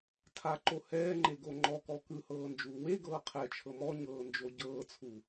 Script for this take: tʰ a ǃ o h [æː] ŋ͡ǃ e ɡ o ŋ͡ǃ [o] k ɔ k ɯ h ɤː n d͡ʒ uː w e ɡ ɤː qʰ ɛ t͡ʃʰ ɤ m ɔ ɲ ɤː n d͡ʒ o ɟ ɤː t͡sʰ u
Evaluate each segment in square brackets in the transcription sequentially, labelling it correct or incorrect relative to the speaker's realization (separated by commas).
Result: incorrect, incorrect